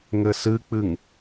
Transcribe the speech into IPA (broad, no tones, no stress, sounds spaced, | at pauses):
ŋ ɘ s ɨ k͡p ɨ ŋ